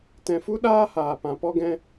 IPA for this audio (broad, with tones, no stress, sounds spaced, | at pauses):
t ɛ̃˧ f u˦ ɗ aː˦ h aː˨ p ã˨ p ɔ˦ ɡ ɛ̃˦